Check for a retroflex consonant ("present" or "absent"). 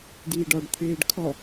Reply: present